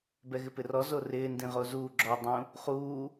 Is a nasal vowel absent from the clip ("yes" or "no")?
no